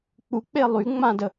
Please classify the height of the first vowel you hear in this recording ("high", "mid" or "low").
high